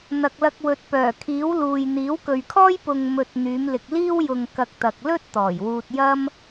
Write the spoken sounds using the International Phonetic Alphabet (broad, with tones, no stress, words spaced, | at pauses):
n̪ɐ˨k̚lɐ˧k̚wɵ˨t̚ pœː˨˩kʰiː˨˥wluː˨j n̪iː˨˥wkɵ˨ɥkʰɔː˥j pʊ˨ŋmɵ˨t̚ n̪yː˨˧mlɪ˨k̚ liː˥wjʊ˧ŋ kɐ˧k̚t̪ɐ˨k̚lɵ˥t̚ t̪ɔː˨˩jwuː˧t̚jɐ˥m